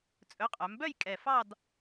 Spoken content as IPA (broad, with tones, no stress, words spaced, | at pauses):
t͡sʼɵ˨˥qʼœ˩˧mbœ˥˧j kʼɛ˨˩fɑ˥˧d